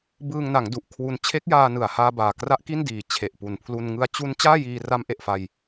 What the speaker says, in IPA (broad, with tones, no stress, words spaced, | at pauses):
bɯː˧ŋna˩˦ŋ du˨˩ʔkʰwu˧n t͡ɕʰe˦˥k̚jaː˧nɯ˨˩a̯haː˧ baː˨˩kra˦˥ʔki˥˩ndiː˨˩ t͡ɕʰe˨˩ʔpu˨˩npʰlu˧n ŋɯ˧a̯t͡ɕu˦˥n t͡ɕaː˥˩jiː˧ ra˦˥mʔe˨˩ʔfa˧j